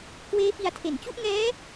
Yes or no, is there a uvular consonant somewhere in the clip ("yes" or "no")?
no